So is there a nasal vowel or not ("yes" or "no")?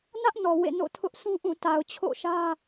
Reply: yes